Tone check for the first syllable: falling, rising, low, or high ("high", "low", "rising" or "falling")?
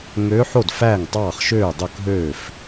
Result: rising